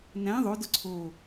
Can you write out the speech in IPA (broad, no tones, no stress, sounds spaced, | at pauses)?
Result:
n æ̃ ðˤ o d ʊ ǀʰ o